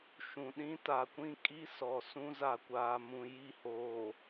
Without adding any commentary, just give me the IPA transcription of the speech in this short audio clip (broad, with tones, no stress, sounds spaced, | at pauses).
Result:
ʃ ũ˨ ɗ ĩ˦ t a˨ kʷ ĩ˦ kʼ i˦ s ɔ˨ s ũ˦ z a˨ kʷ aː˨ m ũ˨ j i˦˨ h oː˨